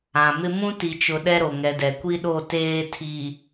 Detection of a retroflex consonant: absent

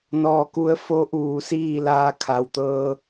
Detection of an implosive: absent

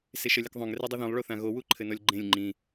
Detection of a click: present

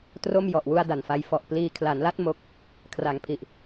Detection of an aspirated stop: present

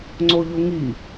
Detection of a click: present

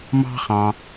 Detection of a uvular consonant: present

